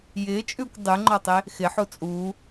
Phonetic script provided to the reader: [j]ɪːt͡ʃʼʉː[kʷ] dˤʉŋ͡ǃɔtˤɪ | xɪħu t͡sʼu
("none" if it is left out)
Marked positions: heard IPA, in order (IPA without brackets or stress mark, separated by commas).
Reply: j, kʷ